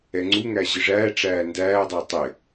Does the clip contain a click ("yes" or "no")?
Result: yes